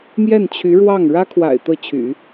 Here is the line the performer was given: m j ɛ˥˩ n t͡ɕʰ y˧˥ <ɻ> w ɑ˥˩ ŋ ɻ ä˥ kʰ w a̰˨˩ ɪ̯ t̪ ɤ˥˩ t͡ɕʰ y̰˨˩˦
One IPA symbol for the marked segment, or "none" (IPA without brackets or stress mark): ɻ